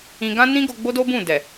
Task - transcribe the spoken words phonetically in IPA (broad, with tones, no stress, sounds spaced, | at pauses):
ĩ˧ ɡ ã˦ n ĩ˦ ɡ o˧ ɡ͡b o˦ d o˦ b ũ˦˨ d ɛ˨